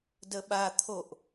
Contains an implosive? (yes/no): yes